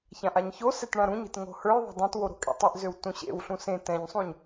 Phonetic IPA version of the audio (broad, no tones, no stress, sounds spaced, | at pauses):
ç ã ʔ a ɲ ç o s ɛ t ɳ ã ɾ ũ ɲ e̤ t ŋ o̤ h ə˞ j ðˤ a̤ dˤ õ t w o ɾ o̤ kʼ ḛ tˤ e ʔ z ø w t ũ ɕ ḛ w ɬ ũ s ẽ t ɛ̃ ɲ sˤ ũ ɲ